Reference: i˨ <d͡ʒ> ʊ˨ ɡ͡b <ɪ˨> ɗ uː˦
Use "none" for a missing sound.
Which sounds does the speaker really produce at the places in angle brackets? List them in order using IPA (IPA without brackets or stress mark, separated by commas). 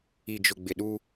d͡ʒ, ɪ˨